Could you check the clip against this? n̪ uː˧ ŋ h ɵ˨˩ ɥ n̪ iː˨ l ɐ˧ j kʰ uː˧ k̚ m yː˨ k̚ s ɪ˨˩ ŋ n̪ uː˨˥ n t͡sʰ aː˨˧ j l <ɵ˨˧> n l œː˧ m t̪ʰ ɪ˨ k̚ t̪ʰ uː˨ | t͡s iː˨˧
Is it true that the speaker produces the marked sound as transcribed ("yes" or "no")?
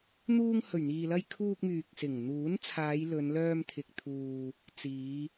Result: yes